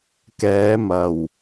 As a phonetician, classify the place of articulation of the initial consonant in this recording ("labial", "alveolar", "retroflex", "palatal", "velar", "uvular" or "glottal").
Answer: velar